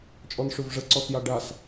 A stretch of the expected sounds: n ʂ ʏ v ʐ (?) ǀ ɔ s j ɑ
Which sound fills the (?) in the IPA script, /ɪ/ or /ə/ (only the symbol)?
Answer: ə